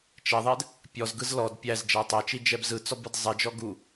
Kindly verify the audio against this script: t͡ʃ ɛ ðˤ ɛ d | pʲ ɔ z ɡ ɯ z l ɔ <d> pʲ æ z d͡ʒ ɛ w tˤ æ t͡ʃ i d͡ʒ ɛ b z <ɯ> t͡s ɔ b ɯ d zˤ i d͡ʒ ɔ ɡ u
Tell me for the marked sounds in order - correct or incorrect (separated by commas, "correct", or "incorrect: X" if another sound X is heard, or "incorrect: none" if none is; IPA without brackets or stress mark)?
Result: correct, correct